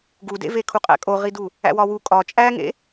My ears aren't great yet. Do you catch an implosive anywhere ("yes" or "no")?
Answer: no